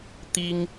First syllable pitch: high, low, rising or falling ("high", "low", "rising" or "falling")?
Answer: high